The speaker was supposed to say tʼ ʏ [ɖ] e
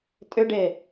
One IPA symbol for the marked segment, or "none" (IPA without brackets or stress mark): ɖ